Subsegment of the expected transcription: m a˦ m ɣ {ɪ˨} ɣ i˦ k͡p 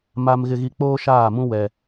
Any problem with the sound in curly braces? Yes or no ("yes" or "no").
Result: yes